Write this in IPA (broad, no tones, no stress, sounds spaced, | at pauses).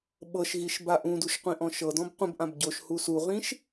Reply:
ɓ ɤ ʃ ɣ i ʃ b a ʔ ũ d u ʃ qʷ ĩ ʔ ɔ̃ ʃ ɤ d ɔ̃ b qʷ ə̃ b ʔ ã b ɟ o ʃ h u s u ʁ ĩ ʃ